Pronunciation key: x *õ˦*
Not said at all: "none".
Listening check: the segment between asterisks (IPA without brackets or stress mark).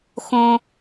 õ˦